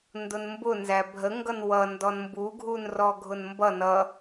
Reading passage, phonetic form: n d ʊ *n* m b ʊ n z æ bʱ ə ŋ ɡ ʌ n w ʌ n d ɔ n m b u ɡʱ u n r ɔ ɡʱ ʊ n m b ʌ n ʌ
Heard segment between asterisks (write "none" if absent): n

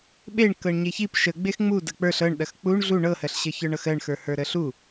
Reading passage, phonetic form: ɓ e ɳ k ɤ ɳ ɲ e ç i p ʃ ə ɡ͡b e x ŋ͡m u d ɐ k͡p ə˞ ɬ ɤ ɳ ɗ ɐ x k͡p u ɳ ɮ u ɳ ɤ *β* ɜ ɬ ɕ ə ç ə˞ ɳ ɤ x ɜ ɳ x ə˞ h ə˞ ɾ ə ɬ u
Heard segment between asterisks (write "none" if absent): h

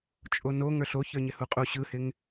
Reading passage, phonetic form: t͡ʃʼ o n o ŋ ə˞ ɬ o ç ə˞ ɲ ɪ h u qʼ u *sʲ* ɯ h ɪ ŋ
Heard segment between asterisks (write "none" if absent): ɕ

